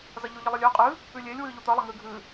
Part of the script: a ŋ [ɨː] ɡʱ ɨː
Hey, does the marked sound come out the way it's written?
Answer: yes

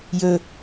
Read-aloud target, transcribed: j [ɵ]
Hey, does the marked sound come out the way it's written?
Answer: yes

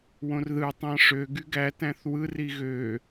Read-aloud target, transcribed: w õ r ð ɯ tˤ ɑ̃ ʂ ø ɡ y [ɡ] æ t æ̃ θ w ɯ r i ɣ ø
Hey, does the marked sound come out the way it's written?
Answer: yes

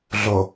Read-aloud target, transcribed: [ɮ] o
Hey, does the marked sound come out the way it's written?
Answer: yes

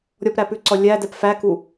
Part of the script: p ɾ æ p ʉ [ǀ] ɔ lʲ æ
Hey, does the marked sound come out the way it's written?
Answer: yes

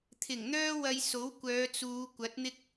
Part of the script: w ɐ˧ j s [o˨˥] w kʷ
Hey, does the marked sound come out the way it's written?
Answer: yes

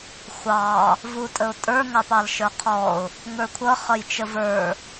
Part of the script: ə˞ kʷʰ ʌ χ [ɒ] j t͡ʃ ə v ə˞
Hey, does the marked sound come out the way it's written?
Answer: no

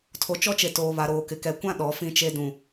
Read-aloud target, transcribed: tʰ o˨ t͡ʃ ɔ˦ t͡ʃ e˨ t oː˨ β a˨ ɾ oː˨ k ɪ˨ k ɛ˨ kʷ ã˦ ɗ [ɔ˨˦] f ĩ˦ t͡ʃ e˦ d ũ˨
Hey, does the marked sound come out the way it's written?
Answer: yes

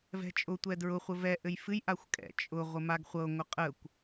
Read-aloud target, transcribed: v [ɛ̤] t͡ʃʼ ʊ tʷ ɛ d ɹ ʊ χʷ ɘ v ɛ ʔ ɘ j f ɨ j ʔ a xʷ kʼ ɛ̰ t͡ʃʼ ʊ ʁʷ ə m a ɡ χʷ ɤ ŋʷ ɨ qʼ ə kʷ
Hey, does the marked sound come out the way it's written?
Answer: yes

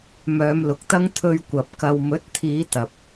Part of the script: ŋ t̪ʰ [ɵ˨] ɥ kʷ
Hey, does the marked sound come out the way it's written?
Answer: no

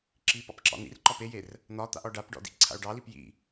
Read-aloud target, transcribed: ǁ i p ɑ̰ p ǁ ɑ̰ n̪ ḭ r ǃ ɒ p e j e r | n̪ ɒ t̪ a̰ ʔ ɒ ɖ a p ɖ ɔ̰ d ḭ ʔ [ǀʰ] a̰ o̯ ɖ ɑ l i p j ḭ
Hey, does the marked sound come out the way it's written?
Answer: yes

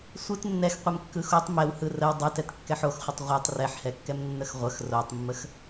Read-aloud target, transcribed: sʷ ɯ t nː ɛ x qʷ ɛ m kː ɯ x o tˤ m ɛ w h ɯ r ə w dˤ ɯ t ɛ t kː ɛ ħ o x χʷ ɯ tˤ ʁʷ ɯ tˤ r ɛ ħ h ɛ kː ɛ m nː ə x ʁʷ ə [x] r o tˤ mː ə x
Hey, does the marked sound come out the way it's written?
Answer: yes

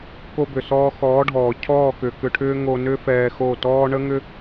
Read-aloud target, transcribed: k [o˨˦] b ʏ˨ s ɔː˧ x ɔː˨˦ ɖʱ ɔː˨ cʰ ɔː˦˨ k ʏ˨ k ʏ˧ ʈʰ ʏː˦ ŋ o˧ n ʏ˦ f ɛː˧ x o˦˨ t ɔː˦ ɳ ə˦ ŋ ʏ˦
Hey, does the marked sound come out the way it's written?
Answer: no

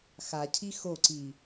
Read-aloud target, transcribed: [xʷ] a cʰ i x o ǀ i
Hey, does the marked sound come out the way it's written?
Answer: no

